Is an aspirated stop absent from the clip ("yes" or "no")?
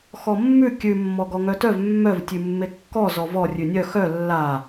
yes